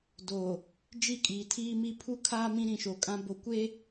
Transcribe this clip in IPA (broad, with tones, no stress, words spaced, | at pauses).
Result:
do˨ | d͡ʒi˦˨kʼiː˨tʰiː˦mi˦ pʰu˦kʰaː˦ mĩ˦ɾĩ˨ʃo˨kʼã˦ bo˨kʷe˦